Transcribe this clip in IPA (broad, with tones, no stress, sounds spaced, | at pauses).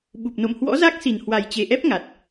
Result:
ɓ u˨˩ p̚ n o̰˧˨ m h w ɔ̰˧˥ z a˦˥ k̚ s i˨˩ n h w a˨˩ j t͡ɕ e˨˩ ʔ ɛ˦˥ p̚ ŋ a˨˩ t̚